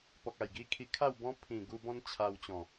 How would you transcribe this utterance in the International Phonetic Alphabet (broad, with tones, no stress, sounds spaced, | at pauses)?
p ɔ˨ k̚ a˨˩ j ɡ i˧ kʰ i˧ kʰ a˥˧ w b ɔ̃˦ pʰ ĩ˨˩ ɡ u˧ b ɔ̃˦ n t͡ɕʰ a˧ w t͡ɕ ɔ̃˨˩